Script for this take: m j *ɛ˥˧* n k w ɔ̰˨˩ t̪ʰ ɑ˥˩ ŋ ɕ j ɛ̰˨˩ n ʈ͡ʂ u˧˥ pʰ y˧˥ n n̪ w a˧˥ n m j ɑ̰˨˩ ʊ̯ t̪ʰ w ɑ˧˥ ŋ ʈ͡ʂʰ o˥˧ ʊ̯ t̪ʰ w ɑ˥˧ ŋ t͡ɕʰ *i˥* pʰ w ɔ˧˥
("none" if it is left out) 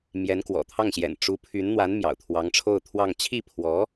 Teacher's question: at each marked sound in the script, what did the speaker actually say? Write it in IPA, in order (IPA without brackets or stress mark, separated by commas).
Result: ɛ˧˥, i˥˩